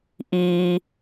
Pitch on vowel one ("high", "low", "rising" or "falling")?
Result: low